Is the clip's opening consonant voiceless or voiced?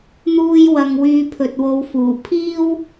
voiced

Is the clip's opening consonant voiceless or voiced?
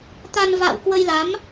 voiceless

